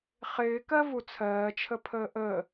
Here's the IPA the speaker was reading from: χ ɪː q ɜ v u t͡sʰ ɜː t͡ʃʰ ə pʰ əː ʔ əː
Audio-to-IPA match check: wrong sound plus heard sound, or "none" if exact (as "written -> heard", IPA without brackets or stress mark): q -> k